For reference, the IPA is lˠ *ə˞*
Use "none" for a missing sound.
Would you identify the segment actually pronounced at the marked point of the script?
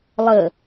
ə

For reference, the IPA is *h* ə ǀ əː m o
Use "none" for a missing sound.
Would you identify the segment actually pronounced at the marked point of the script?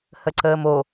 h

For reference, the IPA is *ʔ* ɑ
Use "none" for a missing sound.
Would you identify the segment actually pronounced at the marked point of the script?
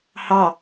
h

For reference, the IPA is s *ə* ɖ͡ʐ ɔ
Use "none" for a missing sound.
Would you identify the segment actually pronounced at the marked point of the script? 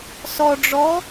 ɔ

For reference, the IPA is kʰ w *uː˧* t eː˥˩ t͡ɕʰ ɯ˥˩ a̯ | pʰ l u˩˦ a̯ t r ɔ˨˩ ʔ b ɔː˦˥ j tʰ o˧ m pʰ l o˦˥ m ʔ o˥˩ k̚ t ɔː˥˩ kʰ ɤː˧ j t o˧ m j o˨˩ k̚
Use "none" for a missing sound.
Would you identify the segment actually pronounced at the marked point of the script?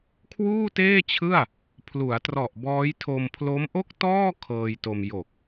uː˥˩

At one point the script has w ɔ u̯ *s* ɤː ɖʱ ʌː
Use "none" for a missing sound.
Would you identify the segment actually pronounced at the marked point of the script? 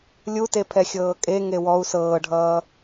s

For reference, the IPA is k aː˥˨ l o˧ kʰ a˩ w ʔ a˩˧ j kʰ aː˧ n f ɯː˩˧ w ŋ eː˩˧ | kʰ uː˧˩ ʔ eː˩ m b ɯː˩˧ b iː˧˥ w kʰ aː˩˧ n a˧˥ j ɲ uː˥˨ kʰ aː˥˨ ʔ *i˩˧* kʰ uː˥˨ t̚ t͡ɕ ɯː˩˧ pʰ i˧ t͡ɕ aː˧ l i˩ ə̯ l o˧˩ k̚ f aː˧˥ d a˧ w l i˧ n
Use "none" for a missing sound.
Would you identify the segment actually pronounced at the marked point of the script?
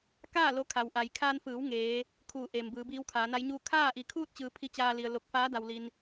i˩˧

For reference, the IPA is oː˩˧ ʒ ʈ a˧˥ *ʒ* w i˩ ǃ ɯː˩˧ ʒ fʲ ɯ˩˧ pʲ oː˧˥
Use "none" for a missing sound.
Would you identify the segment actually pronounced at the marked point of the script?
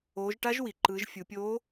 ʒ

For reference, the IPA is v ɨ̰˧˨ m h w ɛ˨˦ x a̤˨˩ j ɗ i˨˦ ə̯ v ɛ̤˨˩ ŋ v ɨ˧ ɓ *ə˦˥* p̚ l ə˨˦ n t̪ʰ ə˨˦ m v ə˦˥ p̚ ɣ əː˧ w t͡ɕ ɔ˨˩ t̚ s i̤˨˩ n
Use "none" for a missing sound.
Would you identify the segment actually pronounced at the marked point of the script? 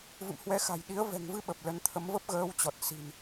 ə˨˩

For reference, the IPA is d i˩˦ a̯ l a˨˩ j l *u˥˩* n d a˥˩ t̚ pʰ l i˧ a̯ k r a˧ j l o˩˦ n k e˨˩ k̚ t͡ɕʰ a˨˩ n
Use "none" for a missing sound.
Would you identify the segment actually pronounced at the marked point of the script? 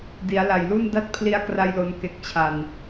u˥˩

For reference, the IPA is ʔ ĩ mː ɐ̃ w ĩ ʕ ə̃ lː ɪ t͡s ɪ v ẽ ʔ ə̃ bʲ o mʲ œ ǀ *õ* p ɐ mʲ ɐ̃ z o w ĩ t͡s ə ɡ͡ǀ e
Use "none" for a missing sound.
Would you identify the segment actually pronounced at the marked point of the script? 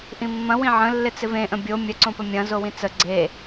õ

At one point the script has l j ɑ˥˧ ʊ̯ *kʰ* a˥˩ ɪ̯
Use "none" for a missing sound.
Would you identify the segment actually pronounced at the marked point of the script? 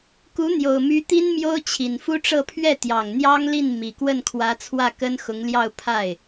pʰ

